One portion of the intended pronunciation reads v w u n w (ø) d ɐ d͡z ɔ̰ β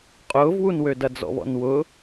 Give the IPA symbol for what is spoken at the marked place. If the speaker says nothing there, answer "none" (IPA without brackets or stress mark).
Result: ø